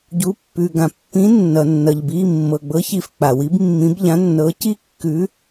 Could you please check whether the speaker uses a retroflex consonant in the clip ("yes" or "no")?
no